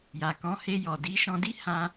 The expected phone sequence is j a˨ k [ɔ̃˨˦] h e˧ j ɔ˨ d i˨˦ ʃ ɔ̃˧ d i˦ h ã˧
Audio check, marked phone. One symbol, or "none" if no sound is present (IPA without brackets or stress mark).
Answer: ɔ̃˨˦